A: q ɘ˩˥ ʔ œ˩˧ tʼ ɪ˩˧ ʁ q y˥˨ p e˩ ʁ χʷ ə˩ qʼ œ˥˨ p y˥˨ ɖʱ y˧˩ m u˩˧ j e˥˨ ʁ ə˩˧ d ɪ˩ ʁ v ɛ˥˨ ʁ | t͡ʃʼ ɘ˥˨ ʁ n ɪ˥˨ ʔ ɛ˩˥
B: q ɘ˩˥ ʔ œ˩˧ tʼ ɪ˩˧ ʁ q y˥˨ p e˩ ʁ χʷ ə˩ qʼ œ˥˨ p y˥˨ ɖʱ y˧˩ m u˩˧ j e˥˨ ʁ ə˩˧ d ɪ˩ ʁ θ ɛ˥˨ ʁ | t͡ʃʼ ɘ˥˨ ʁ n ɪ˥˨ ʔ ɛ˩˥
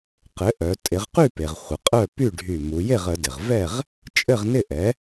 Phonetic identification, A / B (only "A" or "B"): A